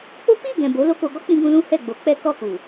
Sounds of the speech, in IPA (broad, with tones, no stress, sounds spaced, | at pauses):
k͡p o˦ k͡p i˦˨ ɡ ɛ̃˨ b o˨˦ l o˦ k o˧ ɡ ɔ˦ k͡p ĩ˧ ɡ ũ˧ l ũ˦ h ɛ˦˨ ɡ͡b o˨˦ k͡p ɛ˦ k ɔ˦˨ k u˨